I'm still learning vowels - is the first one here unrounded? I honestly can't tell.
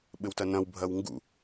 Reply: yes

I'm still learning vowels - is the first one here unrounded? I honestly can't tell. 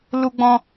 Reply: no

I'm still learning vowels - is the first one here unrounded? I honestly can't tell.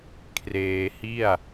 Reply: yes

